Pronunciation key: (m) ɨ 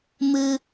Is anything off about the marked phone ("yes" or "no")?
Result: no